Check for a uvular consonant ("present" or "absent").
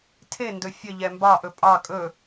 absent